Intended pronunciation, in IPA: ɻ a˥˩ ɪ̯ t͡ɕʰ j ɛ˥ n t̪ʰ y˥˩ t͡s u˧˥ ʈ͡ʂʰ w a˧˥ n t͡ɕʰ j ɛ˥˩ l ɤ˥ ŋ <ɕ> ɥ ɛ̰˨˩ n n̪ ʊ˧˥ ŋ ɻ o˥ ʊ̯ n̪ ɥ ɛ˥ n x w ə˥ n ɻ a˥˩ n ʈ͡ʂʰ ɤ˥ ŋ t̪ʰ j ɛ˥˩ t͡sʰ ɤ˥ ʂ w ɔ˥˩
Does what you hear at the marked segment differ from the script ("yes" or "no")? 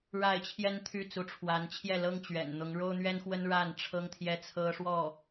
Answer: yes